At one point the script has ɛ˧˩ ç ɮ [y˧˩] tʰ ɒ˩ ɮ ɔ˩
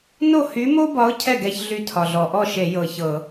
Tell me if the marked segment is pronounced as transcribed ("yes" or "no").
yes